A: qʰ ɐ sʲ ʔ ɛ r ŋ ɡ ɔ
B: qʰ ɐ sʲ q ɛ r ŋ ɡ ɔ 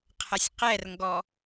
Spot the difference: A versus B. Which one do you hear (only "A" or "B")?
B